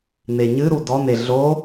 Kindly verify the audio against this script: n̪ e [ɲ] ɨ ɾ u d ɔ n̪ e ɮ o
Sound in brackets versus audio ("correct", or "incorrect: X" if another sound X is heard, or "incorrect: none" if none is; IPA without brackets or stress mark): correct